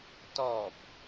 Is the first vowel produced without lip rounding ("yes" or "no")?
no